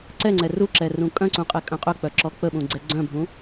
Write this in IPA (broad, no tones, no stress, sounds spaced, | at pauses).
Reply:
ǀ ɛ ŋ͡ǀ ɛ r u ǁ ɛ r ũ kʼ œ̃ ǀ ũ qʼ ɛ kʼ œ̃ qʼ œ k͡p œ ǁ ɔ k͡p ə ɓ ũ ɡ͡ǀ ɛ ɡ͡ǀ œ̃ bʱ ũ